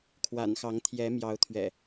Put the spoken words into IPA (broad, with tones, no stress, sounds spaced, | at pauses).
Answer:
kʰ w a̰˨˩ n x ɑ˨˦ ŋ t̪ʰ j ɛ˨˦ m j ɑ˨˦ ʊ̯ t̪ʰ ɥ ɛ̰˨˩